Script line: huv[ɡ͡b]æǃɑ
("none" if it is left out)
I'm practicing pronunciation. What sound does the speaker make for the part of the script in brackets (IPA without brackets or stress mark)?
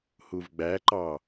ɡ͡b